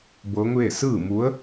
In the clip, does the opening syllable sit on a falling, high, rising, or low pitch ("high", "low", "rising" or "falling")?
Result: rising